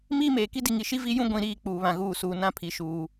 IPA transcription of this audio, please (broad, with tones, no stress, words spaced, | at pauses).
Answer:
miː˦meː˨ ki˦di˨ŋi˨ʃi˦ vi˦jũ˦ ɡʷĩ˨ɾiː˦˨ k͡puː˨ βã˨ɣuː˦˨ suː˨nã˦˨ pʰi˨ʃuː˨